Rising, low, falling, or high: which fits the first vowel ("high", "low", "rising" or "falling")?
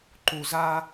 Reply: high